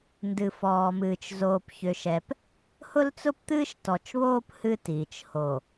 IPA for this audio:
n d ɨ˨ f ɔː˨ m ɨː˨ t͡ʃ z oː˨ p ç ʏ˨ ʃ ɛ˨ p | h ʊ˦ l t͡s ʊ˦ p t̪ ɨː˦ ʃ t ɔ˨ t͡ʃ β oː˦ p h ɨ˦ t iː˨ t͡ʃ h o˨

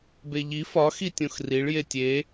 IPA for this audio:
b e ʎ i f ɒ x i tʲ õ x r i ɭ j e tʲ e

